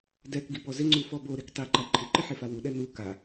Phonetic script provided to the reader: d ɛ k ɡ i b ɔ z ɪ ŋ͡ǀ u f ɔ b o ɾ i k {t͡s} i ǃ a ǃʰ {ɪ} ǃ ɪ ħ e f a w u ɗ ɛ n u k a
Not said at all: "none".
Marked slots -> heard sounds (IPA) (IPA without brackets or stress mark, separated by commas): tˤ, ɪ